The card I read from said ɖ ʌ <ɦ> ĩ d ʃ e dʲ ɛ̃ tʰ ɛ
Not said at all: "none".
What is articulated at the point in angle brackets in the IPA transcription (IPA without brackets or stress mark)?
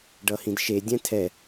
h